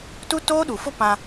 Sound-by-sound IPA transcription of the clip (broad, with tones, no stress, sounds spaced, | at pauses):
t u˦ t oː˦ ɗ u˨ f ʊ˦ p ã˦